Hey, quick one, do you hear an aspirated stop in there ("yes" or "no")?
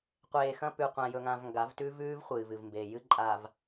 no